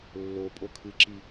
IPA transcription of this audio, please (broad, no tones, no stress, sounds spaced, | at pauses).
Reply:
lː o pʼ o kʰ ɨ ǁ i